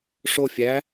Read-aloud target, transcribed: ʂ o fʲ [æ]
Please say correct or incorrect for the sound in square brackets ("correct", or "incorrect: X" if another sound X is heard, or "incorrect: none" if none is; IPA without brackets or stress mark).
correct